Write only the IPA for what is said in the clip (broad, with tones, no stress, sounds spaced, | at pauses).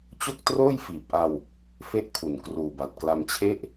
t͡ɕ o˥˩ k̚ t r oː˥˩ j f iː˨˩ p̚ ʔ a˧ w | f e˥˩ ʔ kʰ u˨˩ n k r uː˨˩ b a˨˩ t̚ k l a˧ m t͡ɕʰ e˥˩ ʔ